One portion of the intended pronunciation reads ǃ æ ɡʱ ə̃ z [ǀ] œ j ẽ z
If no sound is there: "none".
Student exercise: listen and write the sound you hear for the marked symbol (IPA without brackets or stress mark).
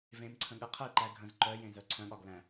ǃ